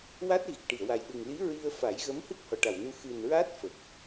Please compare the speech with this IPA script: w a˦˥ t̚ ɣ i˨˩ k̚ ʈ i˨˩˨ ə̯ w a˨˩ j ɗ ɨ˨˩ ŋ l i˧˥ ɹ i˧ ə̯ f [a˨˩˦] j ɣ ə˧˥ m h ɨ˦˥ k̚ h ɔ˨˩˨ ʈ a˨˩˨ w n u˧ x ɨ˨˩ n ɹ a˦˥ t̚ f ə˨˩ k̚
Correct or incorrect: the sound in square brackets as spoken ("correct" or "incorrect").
correct